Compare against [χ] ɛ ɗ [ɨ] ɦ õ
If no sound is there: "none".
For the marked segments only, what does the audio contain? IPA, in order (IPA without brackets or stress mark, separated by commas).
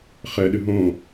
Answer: χ, ɨ